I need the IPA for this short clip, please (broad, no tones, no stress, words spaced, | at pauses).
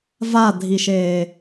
vadʱiʃeː